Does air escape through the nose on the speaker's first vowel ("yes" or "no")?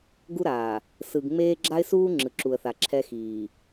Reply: no